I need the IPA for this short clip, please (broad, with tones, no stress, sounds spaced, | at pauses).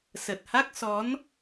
s ə˨˩ t̚ h a˦˥ k̚ s ɔ˨˦ n